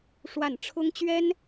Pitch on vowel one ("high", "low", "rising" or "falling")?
falling